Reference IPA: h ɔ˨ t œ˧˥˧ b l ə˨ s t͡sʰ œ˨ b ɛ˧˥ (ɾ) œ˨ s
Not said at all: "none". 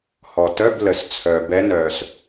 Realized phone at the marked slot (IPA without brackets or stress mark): n